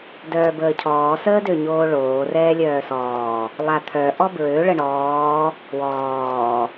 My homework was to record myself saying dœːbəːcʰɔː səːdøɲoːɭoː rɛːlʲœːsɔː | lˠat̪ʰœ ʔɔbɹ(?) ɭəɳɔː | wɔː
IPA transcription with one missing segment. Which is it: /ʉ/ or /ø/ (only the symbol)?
ø